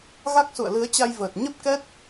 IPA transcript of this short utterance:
ɣa˦˥k̚sṵ˧˨ə̯ lɨ˨˦ə̯t͡ɕa˧jvəː˨˩t̚ ɲə˦˥p̚kɛ˦˥t̚

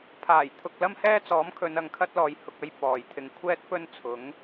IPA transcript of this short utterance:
pʰaː˨˩j t̪ʰʊ˧k̚ lɐ˥mhɛː˥t͡sɔː˨˥mkʰɵ˨˧n ɐ˨ŋkʰɐ˥t̚ lɔː˨jhʊ˧k̚ɐ˥j pɔː˨jt̪ʰɪ˧ŋ kʷʰɛː˥t̚pɵ˥nt͡sʰʊ˨˥ŋ

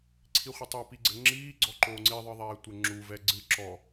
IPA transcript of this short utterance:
ǀʰiχʷɨtˤɛ piɡ͡ǀɘŋ͡ǁiː ɡ͡ǀɔǃoːŋ͡ǀi ðˤɨðˤɛːtʷɘŋ͡ǁu vɛɡ͡ǀɨ ǁɔ

